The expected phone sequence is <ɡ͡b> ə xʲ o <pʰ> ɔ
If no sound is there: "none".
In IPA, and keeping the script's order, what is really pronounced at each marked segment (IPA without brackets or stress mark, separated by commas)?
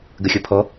ɡ, pʰ